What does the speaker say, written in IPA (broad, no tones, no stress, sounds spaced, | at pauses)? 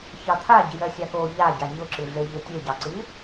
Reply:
ç ɑ t̪ʰ a ɟ i j ɜ sʲ a k o ʎ a ɟ a ɲ ʊ ǁ ɨ ɮ e ʎ e tʲ e ɟ ɑ ǀ ɨ